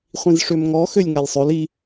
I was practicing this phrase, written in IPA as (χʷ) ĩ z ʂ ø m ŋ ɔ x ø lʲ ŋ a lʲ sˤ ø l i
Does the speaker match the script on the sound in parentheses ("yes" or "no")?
yes